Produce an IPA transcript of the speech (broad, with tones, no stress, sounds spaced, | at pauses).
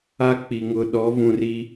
a˦ k͡p i˨ ŋ ʊ˨ ɗ ɔ˨˦ v ũ˨ r i˦